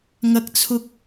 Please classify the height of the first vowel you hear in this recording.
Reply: low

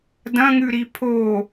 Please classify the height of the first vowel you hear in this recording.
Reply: low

